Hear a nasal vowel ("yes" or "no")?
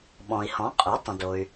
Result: yes